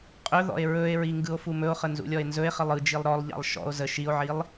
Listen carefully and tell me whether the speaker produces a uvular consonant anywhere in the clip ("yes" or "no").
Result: yes